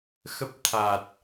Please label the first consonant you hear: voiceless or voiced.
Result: voiceless